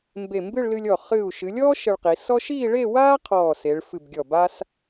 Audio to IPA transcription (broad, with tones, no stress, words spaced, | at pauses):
mbe˧˩mbɨ˥˧ɭlɨ˧lʲɔ˧˩ χɨ˧˩u̯ ʃɨ˩˧lʲɔː˥ ʃə˧ɭqi˩˧ sɔ˥ʃ iː˥˧ɭe˥˧waː˥ qʰɔː˧˩se˩˧ɭfɨ˧˩bɡʲɔ˧˩ ba˥s